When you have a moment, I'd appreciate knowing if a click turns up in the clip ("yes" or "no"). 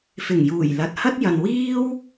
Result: no